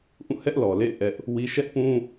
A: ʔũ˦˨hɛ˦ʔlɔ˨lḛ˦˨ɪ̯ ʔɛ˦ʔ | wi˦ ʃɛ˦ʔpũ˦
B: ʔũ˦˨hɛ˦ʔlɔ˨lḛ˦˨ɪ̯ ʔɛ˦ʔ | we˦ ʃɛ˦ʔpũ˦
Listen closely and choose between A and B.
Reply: A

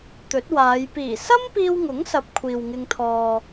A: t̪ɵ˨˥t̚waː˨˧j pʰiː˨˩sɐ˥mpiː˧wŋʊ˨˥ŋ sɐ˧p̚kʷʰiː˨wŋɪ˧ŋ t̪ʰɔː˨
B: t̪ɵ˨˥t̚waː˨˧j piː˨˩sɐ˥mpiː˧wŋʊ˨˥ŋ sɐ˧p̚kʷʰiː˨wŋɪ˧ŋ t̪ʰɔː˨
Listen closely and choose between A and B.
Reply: B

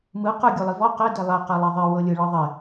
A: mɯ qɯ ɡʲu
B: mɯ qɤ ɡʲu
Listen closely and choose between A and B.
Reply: A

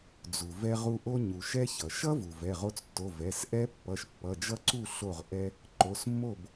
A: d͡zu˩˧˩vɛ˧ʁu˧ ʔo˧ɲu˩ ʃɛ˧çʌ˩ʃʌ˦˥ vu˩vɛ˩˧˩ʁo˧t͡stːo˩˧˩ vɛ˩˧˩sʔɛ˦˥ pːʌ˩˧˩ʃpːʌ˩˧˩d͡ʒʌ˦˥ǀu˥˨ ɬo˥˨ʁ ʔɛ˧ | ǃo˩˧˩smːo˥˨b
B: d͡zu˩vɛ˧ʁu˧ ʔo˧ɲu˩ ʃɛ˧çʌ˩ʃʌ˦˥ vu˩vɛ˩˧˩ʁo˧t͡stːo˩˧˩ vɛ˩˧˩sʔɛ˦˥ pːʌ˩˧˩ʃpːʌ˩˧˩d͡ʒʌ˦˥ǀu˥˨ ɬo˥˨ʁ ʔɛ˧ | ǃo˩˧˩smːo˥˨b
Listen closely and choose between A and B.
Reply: B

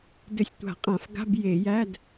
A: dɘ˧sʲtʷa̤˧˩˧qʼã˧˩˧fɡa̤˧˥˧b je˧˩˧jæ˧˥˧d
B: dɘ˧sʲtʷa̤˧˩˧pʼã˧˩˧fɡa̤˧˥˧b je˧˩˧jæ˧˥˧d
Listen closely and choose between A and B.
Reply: A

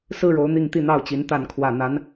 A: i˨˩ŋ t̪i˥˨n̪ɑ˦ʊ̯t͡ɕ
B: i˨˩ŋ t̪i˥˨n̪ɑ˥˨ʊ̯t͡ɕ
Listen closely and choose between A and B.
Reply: B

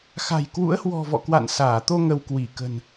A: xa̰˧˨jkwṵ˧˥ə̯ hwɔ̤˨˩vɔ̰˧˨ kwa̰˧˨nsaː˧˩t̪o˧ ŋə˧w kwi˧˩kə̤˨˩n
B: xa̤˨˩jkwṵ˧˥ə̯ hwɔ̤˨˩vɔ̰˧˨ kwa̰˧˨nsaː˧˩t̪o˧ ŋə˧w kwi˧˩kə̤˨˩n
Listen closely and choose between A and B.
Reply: B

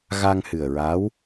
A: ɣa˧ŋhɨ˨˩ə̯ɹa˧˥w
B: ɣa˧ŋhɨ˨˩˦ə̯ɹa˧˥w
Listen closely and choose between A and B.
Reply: A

